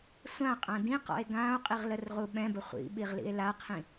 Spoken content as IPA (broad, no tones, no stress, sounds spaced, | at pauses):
sʷ ã qʼ ã d ĩ q ɔ̰ e̯ ɡ ã o̯ qʼ i ʁ l ə r ʁ u ɓ ɛ̃ b ə χʷ ḭ ɓ i ʁ l ḭ e̯ l a qʰ ĩ